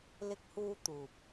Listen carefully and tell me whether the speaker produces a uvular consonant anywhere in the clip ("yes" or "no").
no